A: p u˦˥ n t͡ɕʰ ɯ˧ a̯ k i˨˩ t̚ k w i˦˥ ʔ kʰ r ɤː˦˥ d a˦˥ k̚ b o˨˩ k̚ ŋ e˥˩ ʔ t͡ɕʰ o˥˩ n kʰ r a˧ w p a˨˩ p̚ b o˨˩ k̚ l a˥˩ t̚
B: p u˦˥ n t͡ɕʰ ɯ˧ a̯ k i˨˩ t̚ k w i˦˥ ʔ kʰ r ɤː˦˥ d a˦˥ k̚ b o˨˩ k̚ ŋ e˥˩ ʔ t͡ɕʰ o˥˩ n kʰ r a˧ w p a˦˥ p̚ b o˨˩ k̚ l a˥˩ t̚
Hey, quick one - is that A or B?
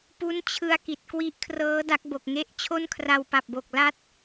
A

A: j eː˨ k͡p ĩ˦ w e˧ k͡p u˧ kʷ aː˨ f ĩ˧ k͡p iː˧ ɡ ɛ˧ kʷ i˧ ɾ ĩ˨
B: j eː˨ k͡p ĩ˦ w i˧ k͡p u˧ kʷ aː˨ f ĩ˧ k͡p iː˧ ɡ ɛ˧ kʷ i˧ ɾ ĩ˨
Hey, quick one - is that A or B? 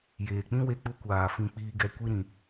A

